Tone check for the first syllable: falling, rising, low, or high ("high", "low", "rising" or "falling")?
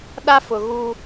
high